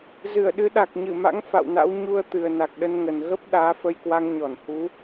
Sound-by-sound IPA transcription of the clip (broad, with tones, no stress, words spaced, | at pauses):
zɨ˧˩ə̯ɗɨ˨˦ɗa˨˩k̚ ɲɨ˧˩ma̰˧˥ŋ fa̰˧˨wna̰˧˥w ɲu˧ə̯t̪ɨ˨˩ə̯ na˨˩k̚ɗə˧nŋə˨˩n ɣə˦˥p̚ ɗaː˨˦fə˧j kwa˧ŋɲɔ˧˩nhu˨˦